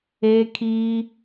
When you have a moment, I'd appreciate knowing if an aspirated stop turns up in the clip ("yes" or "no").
yes